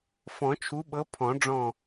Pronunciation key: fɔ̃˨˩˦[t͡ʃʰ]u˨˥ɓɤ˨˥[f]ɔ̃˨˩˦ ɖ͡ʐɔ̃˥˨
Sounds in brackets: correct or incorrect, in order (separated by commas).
correct, incorrect